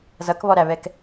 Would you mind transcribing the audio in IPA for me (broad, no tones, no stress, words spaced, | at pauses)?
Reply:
zʌkβɔɾæβɛk